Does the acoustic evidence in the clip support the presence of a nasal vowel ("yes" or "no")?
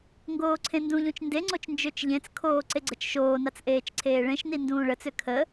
yes